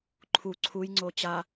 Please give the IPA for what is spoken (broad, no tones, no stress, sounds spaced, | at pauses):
ǃʰ u ǀʰ u j ŋ͡ǀ o t͡ɕ a